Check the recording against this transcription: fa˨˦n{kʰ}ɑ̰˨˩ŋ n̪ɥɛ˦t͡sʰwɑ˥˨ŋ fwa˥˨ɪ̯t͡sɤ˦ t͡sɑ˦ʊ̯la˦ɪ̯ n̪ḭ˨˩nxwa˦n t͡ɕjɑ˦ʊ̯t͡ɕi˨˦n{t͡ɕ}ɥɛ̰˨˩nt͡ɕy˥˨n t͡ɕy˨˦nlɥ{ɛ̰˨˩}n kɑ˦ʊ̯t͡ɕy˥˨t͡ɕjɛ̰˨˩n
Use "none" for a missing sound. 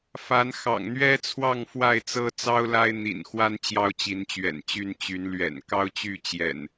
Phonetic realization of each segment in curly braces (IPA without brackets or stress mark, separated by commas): x, t͡ɕ, ɛ̰˨˩